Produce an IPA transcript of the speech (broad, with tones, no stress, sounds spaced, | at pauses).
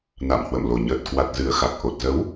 n a̰˧˨ m h w ə̰˧˨ m l o˨˩ ɲ əː˨˩ t̚ k w a˨˩ t̚ z ɨ˨˩ ə̯ x a˨˩ k̚ ʔ o˨˩ t̚ z ə˨˦ w